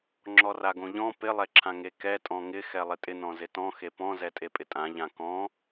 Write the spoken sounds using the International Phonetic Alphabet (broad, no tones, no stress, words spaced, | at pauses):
ŋ͡ǁɔraɡõʎɔ̃ pɪ lˠɛǁʰãŋekɛ tʼɔ̃ŋɪ xɛlˠɪtʼɪ nɔ̃zɪtɔ̃ xepɔ̃ zɛtʼepʼɪtʼã ʎãkɔ̃